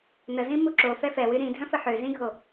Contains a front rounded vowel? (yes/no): yes